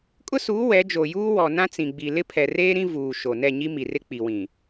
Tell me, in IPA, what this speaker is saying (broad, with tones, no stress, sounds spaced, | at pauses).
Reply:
kʼ ʊ˦ s uː˨˦ w ɛ˨˦ d͡ʒ o˨ j uː˦ w ɔ˨ n ã˦ t͡s ĩ˨ ɡ͡b i˨ l ɪ˦ pʰ ɛ˨ r eː˦ ɾ ĩ˦ v uː˨ ʃ o˨ n ɛ˦˨ ɲ i˦ m i˨ r ɪ˦ k͡p i˨ w ĩ˨